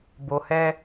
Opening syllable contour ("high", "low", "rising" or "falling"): low